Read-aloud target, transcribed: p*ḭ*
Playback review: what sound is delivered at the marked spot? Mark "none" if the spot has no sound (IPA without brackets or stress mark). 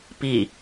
i